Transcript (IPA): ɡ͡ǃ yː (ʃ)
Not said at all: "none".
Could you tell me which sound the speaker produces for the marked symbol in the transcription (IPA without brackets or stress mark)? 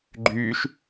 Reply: ʃ